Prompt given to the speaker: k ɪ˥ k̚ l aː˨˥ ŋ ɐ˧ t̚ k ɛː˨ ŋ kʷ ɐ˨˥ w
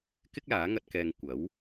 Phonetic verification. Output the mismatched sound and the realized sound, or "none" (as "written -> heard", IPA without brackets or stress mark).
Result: none